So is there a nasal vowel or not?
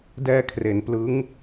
no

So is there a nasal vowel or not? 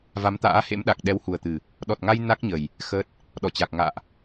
no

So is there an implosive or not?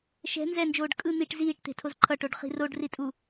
no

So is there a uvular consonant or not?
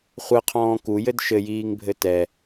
yes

